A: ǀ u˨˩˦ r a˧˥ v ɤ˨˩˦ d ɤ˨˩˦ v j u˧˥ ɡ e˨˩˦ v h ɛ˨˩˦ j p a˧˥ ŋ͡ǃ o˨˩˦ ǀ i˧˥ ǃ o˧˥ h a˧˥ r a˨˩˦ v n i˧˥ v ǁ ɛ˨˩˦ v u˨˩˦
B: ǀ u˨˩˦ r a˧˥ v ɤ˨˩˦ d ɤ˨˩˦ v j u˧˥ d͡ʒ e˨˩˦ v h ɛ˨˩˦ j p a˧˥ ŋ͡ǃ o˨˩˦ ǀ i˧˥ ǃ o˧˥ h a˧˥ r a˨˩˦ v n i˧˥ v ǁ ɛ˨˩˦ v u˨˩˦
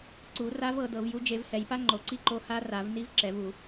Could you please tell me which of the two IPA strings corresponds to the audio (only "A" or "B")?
B